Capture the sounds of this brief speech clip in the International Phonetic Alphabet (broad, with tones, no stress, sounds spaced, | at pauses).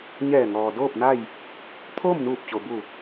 ɲ ɛː˧˩ ŋ ɔː˩ d oː˥˨ p̚ n a˥˨ j | t̪ʰ oː˥˨ m n uː˧˩ p̚ t͡ɕ o˩ b u˧˩